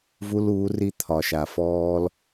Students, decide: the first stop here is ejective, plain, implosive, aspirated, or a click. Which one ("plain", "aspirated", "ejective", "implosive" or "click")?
aspirated